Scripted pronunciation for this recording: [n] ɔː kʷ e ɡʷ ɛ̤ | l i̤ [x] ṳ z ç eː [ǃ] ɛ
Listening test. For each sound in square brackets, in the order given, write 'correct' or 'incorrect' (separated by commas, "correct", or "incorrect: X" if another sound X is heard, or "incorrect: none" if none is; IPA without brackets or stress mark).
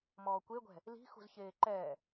incorrect: m, correct, correct